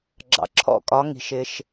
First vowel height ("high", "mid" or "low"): low